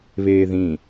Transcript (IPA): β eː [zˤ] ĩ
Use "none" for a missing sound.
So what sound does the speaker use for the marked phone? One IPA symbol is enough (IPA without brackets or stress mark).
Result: ð